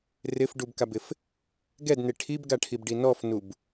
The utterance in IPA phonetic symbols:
rɪfɖubkabɪf | ɡɛdne ʈʰibɡaʈʰibɖi nɔfnub

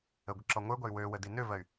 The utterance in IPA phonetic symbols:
əɡʷə ǁɔŋʷə˞ɡʷæy̯ wøwə dinøvɜy̯

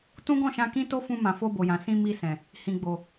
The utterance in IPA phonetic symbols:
tũ˦ɡɔ̃˦˨ʃã˧kĩ˦ to˦fũ˧mã˨fo˧ bo˨jã˨ sĩ˧mi˧ sɛ̃˨ | hĩ˨ɡ͡bo˨

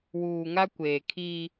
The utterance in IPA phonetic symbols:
wuː˨ŋa˦kʷeː˨kʰiː˦

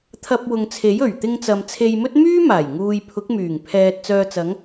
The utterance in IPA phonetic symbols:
t̪ʰɐ˧p̚wʊ˨ŋt͡sʰe˨˥jɵ˨˩ɥ t̪ɪ˧ŋt͡sɐ˨m t͡sʰe˧jmɵ˥t̚ myː˥maː˨˩j ŋuː˨jpʰʊ˨˥k̚myː˨˩ŋ pʰɛː˨t̚ t͡sœː˨t͡sɐ˨˧ŋ

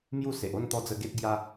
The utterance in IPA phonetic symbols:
mju˥˧se˨ʔ o˥˧nt̪ɔ˧d͡zə˧ ɡe˦t̚ɡja˦

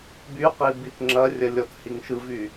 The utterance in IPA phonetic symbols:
byqi bitŋ͡ǁɐrʲɐ lʲɔthiŋʃɯvy

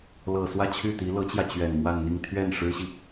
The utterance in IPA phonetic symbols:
lɤ˨˩ swä˥˧t͡ɕʰy˥˩t̪i˧˥ lɤ˧˥t͡ɕjä˧ t͡ɕɥɛ˨˩nmwa˥˧nn̪i˥˧ŋ t̪ʰɥɛ˥˩nʂɻ̩˥ɕi˨

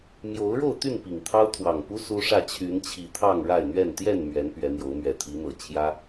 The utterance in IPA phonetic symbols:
mjo˨˦ʊ̯ɻo˥˨ʊ̯t̪y˥˨n pi˨˩ŋt̪ʰɑ˦ʊ̯ t̪ʰwɑ˨˩ŋpu˦ su˦ʂä˥˨ t͡ɕʰy˨˦nt͡ɕʰi˨˩t̪ʰɑ˥˨ŋ ɻa˥˨ɪ̯n̪ɥɛ˥˨n t̪jɛ˥˨nmɥɛ˨˦n pɥɛ˨˦n̪jo˨˦ʊ̯ mɥɛ˨˩ t̪ʰi˨˦n̪ɤ˨˩ t͡ɕʰjä˦

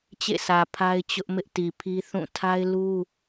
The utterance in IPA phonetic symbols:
t͡ɕḛ˦˨sä˨ pʰa˦ɪ̯t͡ɕʊ˦ʔmɪ˦ʔ ti˨pʰi˦ θũ˦˨ tʰa˦ɪ̯lu˦

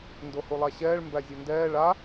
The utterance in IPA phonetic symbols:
ndohulˠaɕɛːɭ mbæzʲundɛː ɭa

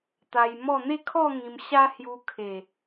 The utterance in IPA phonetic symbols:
t̪a˧jmɔ˥˧ n̪e˥˧kʰɔ˥˧ ŋĩ˧m ɕa˦hju˧kʰe˨˩

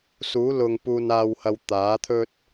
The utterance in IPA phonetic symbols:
suː˨˥lʊ˨ŋ puː˨naː˨whɐ˨w t̪aː˨˥t̪ʰɵ˥t̚

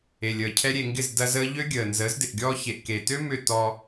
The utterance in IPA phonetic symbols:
e˨lʲəː˨ cʰɛ˦ɾʲe˧ŋɡɪ˦˨z dɐ˧ zəː˦ ʎø˦ɡʲəː˨nzəː˨˦zdɪ˨ʔ ɡʲɔː˧çe˨ʔke˨tø˦ mʏ˦˨ tɔ˧

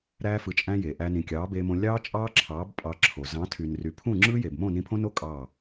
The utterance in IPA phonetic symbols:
ɾæː˧fɯ˨t͡ʃʼæ̃˧ je˨ʔæ˧ nĩ˨kʲɑː˨˦beː˧mõ˧ lʲɑː˦t͡ʃʼɑː˦ǁʰɑː˨˦b pʼɑ˧ǁʰo˨ zɑ̃˨˦tʰy˨nry˨ pʰũ˦˨ŋ͡ǁɯː˦je˨b mõ˦˨nĩ˧pʰõ˦no˦ kʼɑː˦˨

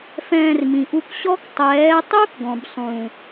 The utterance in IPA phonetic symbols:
fɛ̃ː˧rmĩ˨ʔu˧kɕɔ˦k tˤɛː˨˦tˤu˦kɡɔ̃˨b sˤũ˨

